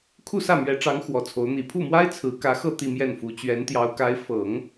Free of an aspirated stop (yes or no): no